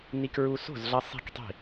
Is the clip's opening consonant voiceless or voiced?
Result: voiced